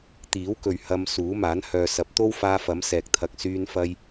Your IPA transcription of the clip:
t̪iː˨˥wkɵ˨ɥ hɐ˧m suː˨˥maː˨˥n hœː˨sɐ˨˥p̚t̪o˥wfaː˧ fɐ˨˥msɛː˨k̚t̪ʰɐ˨˥k̚ syː˧nfɐ˧j

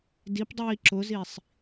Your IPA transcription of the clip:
dipdˤiː ǁʊzisˤ

